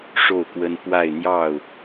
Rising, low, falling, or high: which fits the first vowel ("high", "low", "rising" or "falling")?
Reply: falling